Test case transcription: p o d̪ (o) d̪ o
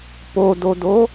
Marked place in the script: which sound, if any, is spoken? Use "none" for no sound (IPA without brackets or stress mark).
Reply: o